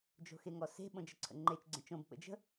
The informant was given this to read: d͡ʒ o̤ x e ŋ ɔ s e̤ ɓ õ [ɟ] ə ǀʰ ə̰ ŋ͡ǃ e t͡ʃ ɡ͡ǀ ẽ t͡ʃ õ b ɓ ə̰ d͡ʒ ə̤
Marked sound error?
yes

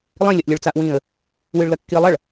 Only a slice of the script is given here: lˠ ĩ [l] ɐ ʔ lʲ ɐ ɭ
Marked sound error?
yes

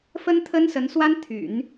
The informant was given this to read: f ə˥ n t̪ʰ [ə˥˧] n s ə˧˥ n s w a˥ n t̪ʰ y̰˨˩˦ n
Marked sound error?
yes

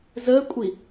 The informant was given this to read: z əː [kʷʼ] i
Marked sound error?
no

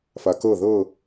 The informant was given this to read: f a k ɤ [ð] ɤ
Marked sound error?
no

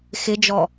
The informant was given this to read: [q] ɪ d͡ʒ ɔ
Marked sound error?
yes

